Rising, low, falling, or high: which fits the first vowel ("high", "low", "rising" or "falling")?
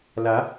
rising